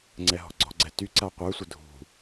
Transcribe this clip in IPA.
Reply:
ŋ͡ǀ ɛ ɦ ɔ̤ ɡ͡ǀ ɔ̤ ɡ͡ǀ ɛ t y ǀ a qʷ ə˞ sʷ ə dʱ ṳ

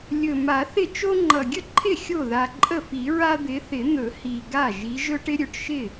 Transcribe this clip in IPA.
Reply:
lʲ ɵ˨˩ m a˨˩˦ θ ɪ˥˩ t͡ʃ o˦ ŋ͡ǃ ʌ˨˩ ɡʲ ə˥˩ ǃʰ ɪ˥˩ xʲ o˥˩ ð a˨˩ ǃʼ ə˥˩ f i˨˩˦ ɹ a˦ d̪ ɪ˨˦ θ ɪ˨˩˦ n̪ ɵ˨˩˦ h i˨˩ ɡ a˥˩ ʒ i˨˦ ʒ ɵ˦ ʈ ɪ˦ ɾʲ ɵ˨˩ ʈ ʃ ɪ˥˩

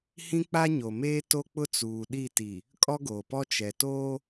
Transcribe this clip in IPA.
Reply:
h ĩ˦ k͡p a˦ ɲ o˨ m eː˦ t o˦ k͡p ʊ˦ t͡s uː˨ ɗ i˦˨ t i˨ | kʼ ɔ˦ ɡ oː˨ p ɔ˦ t͡ʃ ɛ˨ t oː˦

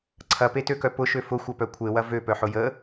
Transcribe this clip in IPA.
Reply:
ǀʰ ɐ p e t ø k œ p ʊ ʃ ø f ʊ xʷ ɐ p œ kʷʰ e w ɐ v ø p œ ħ ʊ j ə

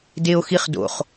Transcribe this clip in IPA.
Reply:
d e o̯ x i χ d o̰ χ

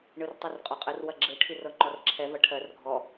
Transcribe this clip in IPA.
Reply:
ɳ ɯ r tˤ ɯ r qʼ ɔ qʼ ə r w ɐ ɡ͡ǁ ɯ ʈʰ i r ɤ ŋ͡ǃ ɔ r ǁʰ ɛ v ɐ ʈʰ ɜ r ɡʱ ɔ

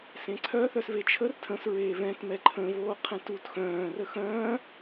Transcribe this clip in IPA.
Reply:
s ẽ ǀʰ œ θ œ s v e t͡ʃʰ ə r tʰ ə̃ s ɹ eː v ɛ̃ t m ɛ ǃʰ ə̃ v oː qʰ ɛ̃ t u t x œ̃ː r ə x œ̃ː

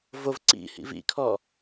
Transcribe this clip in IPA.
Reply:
v o v ǀ ḭ h ḭ v ḭ kʰ ɔ

